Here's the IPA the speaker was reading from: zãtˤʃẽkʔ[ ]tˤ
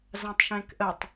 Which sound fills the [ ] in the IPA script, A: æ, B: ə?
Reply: B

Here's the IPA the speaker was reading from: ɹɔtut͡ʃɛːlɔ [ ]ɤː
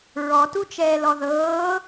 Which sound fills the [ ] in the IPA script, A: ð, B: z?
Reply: A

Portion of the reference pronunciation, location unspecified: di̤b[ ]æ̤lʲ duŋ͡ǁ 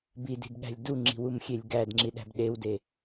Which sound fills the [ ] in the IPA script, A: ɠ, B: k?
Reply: A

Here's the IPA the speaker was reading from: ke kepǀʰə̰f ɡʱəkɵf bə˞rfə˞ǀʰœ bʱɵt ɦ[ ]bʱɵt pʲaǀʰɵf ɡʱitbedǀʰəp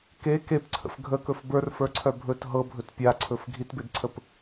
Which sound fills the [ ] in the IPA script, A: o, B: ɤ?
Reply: B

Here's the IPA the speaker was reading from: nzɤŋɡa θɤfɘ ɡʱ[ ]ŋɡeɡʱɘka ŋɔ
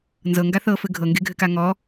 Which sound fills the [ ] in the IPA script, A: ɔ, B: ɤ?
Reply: B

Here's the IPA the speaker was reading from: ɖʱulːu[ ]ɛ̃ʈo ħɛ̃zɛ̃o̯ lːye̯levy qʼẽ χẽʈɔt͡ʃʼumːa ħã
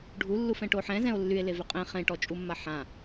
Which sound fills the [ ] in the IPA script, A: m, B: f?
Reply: B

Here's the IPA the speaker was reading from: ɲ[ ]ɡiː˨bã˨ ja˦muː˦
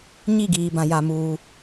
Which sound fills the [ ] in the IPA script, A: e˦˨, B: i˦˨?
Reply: B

